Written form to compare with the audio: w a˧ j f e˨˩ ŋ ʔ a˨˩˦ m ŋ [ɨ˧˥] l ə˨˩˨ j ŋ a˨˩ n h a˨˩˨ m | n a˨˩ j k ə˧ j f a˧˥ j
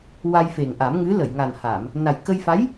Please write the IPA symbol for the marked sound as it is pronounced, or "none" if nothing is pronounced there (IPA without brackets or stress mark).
ɨ˧˥